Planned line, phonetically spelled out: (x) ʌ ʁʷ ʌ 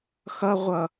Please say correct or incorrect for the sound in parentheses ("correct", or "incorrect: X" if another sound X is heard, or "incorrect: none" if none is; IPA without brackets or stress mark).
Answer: correct